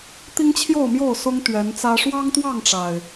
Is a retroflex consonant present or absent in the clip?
present